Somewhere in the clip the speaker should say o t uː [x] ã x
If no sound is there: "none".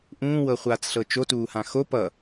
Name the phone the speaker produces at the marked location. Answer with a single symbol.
h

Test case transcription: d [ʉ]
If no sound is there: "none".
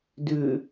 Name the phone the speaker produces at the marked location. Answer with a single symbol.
ʉ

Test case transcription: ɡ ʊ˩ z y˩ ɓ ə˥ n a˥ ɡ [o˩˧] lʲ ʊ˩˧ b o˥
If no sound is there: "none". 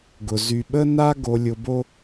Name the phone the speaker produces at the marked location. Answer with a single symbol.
o˩˧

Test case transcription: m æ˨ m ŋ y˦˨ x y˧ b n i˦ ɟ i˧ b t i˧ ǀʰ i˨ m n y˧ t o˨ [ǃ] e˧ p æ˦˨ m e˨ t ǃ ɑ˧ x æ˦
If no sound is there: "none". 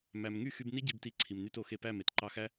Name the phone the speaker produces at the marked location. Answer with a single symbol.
x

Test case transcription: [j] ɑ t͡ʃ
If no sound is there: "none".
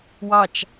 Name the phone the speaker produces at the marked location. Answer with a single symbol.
w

